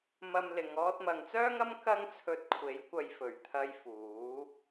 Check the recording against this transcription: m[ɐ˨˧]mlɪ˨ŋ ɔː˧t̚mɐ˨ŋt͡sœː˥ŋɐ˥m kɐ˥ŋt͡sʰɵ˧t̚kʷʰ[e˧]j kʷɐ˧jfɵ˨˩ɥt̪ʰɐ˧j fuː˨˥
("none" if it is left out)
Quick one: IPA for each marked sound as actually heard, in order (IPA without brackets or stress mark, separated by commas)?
ɐ˧, e˨˥